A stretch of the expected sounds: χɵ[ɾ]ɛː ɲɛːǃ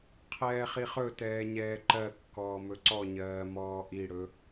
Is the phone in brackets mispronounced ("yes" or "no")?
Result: yes